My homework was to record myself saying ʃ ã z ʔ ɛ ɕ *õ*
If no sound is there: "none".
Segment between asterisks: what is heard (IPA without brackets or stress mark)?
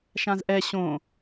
õ